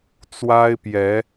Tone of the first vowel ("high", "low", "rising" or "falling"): high